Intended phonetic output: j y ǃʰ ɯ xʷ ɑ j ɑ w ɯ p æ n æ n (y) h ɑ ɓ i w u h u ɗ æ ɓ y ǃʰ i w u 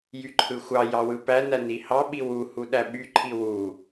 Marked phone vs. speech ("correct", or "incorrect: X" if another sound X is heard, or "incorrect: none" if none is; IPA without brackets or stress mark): incorrect: i